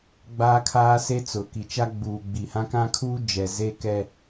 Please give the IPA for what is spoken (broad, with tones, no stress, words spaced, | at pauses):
ɡ͡baː˦kʰaː˦se˦t͡sʊ˨ ki˨t͡ʃa˦ ɡ͡buː˨ɡ͡bi˨hã˦ kã˦kʰuː˦d͡ʒɛ˨ ze˦kɛ˦